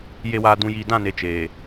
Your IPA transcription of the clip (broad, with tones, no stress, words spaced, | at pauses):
je˨waː˨dũ˨jiː˨ dã˦˨ne˨ t͡ʃeː˨